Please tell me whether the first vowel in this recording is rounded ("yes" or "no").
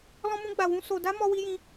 yes